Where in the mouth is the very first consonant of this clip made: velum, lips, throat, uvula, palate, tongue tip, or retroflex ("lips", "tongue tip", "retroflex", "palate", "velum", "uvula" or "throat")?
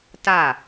tongue tip